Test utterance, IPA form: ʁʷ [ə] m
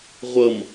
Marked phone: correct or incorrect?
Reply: incorrect